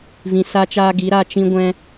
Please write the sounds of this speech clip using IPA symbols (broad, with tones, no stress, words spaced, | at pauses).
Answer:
vĩ˧sa˦t͡ʃaː˦ ɡi˨˦ɾa˧ t͡ʃĩ˦ɡʷɛ̃˦